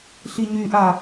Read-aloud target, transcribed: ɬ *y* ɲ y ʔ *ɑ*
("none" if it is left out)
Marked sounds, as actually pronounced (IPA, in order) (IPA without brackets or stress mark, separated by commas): i, a